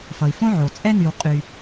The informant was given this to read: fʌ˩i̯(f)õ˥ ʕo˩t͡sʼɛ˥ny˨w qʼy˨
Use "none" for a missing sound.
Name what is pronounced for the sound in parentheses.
f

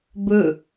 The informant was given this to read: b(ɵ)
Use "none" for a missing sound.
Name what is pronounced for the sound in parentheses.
ɵ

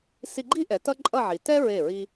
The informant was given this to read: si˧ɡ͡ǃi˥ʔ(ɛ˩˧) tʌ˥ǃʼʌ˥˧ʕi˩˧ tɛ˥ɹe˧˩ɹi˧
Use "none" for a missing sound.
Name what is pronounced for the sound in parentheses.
ɛ˩˧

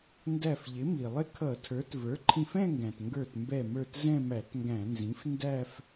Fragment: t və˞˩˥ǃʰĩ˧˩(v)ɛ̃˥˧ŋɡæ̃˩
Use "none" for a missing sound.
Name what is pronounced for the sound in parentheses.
f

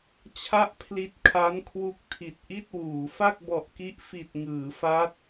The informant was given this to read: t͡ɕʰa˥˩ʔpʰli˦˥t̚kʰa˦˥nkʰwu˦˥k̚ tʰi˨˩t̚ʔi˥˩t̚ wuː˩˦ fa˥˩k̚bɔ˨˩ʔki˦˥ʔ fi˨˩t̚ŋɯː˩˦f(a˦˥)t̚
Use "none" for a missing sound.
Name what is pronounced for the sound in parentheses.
a˦˥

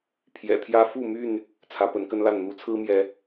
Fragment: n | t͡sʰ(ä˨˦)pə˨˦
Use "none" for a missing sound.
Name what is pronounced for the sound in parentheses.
ä˨˦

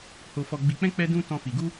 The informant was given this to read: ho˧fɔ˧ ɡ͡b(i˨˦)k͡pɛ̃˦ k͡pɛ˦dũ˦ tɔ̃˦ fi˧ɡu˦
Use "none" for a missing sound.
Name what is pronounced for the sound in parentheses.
i˧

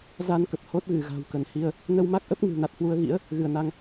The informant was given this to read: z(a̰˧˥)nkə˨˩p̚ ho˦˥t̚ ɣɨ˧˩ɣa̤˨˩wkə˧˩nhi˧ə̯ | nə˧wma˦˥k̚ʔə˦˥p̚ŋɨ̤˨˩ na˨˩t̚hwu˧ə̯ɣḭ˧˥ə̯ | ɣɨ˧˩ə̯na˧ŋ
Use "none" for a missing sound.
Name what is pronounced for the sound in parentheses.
a˧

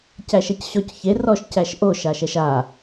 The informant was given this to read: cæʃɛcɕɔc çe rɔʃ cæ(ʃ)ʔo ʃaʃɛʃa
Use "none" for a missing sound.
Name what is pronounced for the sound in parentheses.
ʃ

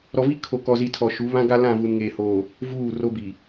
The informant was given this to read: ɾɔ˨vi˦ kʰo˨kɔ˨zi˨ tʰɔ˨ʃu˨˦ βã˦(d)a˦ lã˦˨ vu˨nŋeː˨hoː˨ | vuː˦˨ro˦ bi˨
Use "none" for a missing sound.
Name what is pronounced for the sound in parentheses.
ɡ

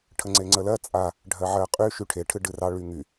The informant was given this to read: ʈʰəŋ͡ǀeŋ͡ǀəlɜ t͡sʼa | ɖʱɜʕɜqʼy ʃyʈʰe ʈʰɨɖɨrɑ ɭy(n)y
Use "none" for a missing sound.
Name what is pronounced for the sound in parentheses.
ŋ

